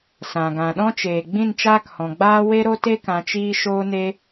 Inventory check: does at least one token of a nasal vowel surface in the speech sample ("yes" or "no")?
yes